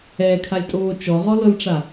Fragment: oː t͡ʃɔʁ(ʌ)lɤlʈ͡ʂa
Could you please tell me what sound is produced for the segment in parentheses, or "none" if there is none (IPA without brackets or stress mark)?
ɔ